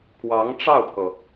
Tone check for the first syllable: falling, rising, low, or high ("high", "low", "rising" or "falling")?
rising